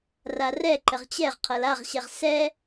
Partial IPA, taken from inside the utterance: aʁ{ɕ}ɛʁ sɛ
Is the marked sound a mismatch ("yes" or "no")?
no